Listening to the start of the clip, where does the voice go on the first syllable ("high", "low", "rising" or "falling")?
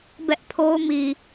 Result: high